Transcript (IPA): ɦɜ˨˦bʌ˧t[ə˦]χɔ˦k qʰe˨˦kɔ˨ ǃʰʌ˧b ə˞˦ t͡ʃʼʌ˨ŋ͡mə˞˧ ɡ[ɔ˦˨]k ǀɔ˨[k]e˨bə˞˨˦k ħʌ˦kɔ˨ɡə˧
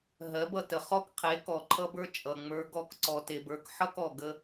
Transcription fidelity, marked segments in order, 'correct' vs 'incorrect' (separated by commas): incorrect, correct, incorrect